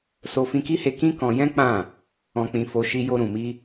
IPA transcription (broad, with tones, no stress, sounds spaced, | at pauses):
s o˧ f ĩ˧ k i˦ h e˧ k ĩ˦ k ɔ̃˧ j ɛ̃˦ k͡p ã˦˨ | ɔ̃˧ k͡p ĩ˧ f o˧ ʃ i˧ j o˧ ɾ ũ˨ m i˧